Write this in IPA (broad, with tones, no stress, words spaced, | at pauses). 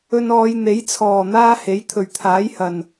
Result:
ɵ˧nɔː˨˧j n̪e˨˥j t͡sʰɔː˨˩ n̪aː˥he˨˥j t̪ʰɵ˨˩ɥt̪ʰaː˨˥jhɐ˨˩n